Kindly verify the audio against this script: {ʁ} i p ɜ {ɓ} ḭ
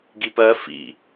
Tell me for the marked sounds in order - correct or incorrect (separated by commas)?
incorrect, incorrect